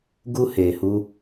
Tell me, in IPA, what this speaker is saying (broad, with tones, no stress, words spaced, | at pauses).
ɡu˧he˨hu˧